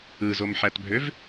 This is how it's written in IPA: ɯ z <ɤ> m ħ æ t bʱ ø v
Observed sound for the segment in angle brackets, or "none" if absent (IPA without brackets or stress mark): o